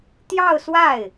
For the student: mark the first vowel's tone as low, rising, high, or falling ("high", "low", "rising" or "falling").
falling